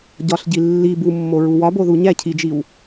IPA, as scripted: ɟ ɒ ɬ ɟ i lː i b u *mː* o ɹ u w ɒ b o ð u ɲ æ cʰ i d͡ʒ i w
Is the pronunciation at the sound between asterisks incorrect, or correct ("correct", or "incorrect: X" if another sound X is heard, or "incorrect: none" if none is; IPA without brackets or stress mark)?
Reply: correct